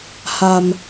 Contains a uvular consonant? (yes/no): no